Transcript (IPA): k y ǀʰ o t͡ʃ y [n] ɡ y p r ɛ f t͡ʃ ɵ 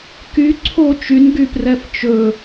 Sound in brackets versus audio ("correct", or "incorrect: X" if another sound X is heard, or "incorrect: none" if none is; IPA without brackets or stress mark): correct